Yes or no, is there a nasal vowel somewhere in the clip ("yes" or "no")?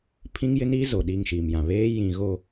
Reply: yes